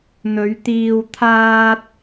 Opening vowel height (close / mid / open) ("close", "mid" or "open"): mid